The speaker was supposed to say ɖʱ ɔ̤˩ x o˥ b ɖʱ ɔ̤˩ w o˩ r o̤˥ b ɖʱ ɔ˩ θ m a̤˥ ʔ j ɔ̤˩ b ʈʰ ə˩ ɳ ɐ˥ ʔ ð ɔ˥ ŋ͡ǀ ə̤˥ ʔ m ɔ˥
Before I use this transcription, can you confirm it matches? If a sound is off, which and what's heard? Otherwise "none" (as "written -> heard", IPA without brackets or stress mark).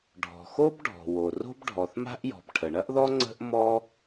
none